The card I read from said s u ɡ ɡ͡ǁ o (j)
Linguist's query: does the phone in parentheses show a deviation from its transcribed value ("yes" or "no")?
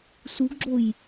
no